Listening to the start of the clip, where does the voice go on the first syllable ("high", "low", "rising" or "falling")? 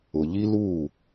low